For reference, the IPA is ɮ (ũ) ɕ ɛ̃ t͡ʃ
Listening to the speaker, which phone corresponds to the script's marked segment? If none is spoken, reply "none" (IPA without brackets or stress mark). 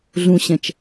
ũ